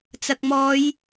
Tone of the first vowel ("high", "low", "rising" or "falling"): low